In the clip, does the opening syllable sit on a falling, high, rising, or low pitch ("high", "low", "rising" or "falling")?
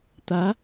rising